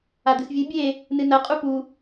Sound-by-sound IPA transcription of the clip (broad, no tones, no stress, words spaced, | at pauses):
ad̪ɨsvʲɨ bʲe | nɨnɐqʼu pu